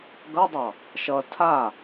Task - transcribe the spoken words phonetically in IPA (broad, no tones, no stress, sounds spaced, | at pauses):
ɡ ʌ dˤ ɑ | ʃ ʌ tʰ a